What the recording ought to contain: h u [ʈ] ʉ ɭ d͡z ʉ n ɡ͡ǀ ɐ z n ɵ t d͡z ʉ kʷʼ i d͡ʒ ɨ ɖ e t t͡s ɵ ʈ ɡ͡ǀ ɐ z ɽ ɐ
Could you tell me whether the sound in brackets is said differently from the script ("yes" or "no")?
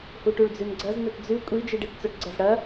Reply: no